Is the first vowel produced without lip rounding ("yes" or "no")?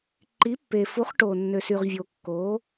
yes